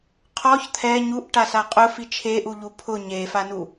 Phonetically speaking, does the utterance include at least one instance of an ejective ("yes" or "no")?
yes